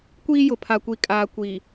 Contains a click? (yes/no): no